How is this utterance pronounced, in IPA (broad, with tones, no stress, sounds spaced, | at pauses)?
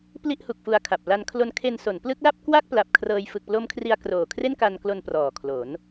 p l i˥˩ ʔ h u˨˩ k̚ f u˧ a̯ kʰ a˨˩ p̚ l a˧ n kʰ l o˧ n kʰ e˧ n s o˩˦ n p l ɯ˦˥ k̚ l a˥˩ p̚ k w a˥˩ k̚ p l a˨˩ p̚ kʰ r ɤː˧ j f ɯ˨˩ k̚ p l o˦˥ m kʰ r i˧ a̯ k r oː˨˩ kʰ r e˥˩ n k a˧ n k l o˧ n p r ɔː˨˩ kʰ l o˩˦ n